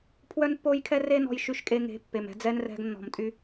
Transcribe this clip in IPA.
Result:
pʰ w œ˦ n pː o˦ j kʰ ɛ˦ r e˦ n ɔ̤˧ j ʃ y˧ ʃ kʼ e˧ ŋ e̤˨˦ pː e˨ m ɛ̤˧ d͡z ɛ˦ n r ɛ̤˧ ɡ nː ɔ̤˨ m tʼ y˧

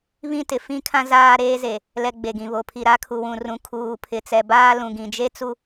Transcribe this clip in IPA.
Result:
β ĩ˦ t ɪ˨ f ĩ˦ kʰ ã˦ z aː˦ ɾ eː˦ z e˨ | l ɛ˨ ɡ͡b e˨ ɡ ĩ˨ β o˨ pʰ i˨ ɾ a˦ kʰ u˨ w ũ˨ r ũ˨ kʰ uː˨ pʰ ɪ˨ t͡s ɛ˨ b aː˦ l ũ˨ ɡ ĩ˨ d͡ʒ e˦ t͡s u˦

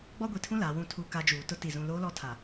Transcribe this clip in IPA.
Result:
ɡ͡b ɔ˦ ɡʷ i˨ tʰ ũ˦ l aː˨ w ũ˦˨ tʰ u˦˨ k a˦ d͡ʒ uː˨ t ʊ˦ t i˨ z ũ˨ l oː˦ l ɔ˦ tʰ a˨

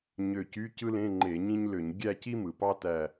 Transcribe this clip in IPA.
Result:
ɲ ø˧˩ c y˧˥˧ c ɯ˥ l ẽ˧˥˧ ŋ͡ǃ e˧˩˧ ɲ ĩ˥ ɲ l ø˧˩˧ ɲ ɡʲ æ˥˧ c i˥ m ɯ˩ p ɑ˥ t æ˧˩

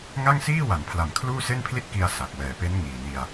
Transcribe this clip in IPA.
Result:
ŋ a˥˩ ŋ s iː˥˩ w a˩˦ n pʰ l a˨˩ m kʰ l uː˥˩ s e˥˩ n pʰ l i˥˩ t̚ k i˧ a̯ s a˨˩ k̚ w ɛː˨˩ p e˦˥ n ŋ iː˨˩ n i˧ a̯

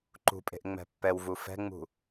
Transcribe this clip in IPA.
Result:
ǃ ṳ pʼ e̤ ʔ ŋ͡m ɛ̤ pː ɛ w v u f ɛ̤ ŋ͡m ṳ

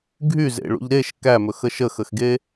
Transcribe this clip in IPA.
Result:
ɡʱ y z ḛ ɭ ṵ ʎ ɾ e ʃ k æ m ɵ x ə ʃ ə x ə x ɡ e

